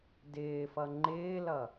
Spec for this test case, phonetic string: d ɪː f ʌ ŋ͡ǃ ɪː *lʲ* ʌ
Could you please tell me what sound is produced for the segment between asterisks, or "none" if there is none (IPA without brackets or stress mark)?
l